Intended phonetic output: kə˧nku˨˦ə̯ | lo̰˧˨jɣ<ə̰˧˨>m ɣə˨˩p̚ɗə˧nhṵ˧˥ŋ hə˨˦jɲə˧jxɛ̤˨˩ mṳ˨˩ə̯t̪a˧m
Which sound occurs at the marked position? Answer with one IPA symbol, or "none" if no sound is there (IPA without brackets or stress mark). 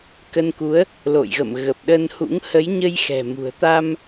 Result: ə̰˧˨